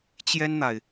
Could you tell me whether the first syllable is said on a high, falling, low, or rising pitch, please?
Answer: high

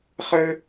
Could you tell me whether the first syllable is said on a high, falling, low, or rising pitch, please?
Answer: high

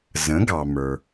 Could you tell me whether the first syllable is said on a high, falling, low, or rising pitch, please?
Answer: rising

